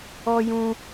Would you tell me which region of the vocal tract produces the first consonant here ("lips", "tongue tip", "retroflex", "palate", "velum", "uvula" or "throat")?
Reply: palate